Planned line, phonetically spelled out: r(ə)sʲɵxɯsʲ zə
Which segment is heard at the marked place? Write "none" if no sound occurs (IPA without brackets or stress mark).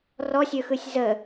ɔ